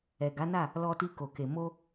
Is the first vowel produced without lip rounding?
yes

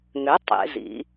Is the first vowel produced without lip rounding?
no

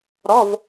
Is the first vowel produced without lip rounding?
no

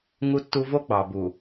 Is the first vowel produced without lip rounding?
no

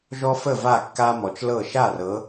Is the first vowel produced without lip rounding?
no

